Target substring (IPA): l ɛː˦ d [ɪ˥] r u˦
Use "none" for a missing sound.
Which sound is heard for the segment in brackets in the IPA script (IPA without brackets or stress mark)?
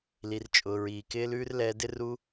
ɪ˥